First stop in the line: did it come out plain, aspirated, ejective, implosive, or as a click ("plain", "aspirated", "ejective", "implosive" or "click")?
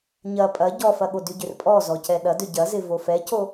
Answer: ejective